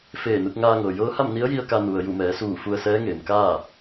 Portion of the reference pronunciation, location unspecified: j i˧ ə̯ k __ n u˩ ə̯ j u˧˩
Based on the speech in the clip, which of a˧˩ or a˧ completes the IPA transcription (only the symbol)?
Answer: a˧